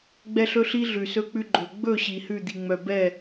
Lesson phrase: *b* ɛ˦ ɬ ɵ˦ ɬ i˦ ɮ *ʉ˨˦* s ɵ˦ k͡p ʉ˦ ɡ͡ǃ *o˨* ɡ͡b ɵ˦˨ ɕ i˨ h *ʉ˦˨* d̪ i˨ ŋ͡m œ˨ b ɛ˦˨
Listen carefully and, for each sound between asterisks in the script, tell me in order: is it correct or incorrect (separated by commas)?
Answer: incorrect, incorrect, incorrect, correct